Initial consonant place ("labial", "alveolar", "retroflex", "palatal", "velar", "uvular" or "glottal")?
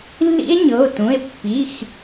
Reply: alveolar